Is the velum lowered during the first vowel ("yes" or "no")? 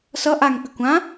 no